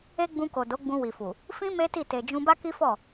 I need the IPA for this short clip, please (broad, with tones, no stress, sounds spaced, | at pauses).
e˦ ɡ͡b ũ˧ k o˨ d o˨˦ ɡ͡b ũ˧ w i˨ f u˨ | f ĩ˦ m e˦ t i˦˨ t e˨ d͡ʒ ũ˧ b a˦ k i˦ f ɔ˦˨